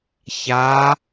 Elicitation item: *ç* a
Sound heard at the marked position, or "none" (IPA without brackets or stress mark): ç